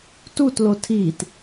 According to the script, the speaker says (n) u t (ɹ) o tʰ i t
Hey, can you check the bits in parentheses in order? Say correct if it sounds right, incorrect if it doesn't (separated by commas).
incorrect, incorrect